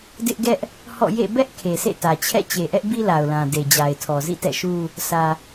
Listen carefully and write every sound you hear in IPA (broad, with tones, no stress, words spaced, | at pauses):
dɪ˦ʔɡɛ˦ʔ | hɔ̰˦˨jḛ˦˨ bɛ˦ʔ kʰe˨sʰḛ˦˨tä˨t͡ɕʰɛ̰˦˨ t͡ɕe˨ʔɛ˦ʔbi˦ la˨ʊ̯lã˨de˨d͡ʑa˨ɪ̯ tʰɔ˨zḭ˦˨tɛ̰˦˨ʃu˦ | sʰä˨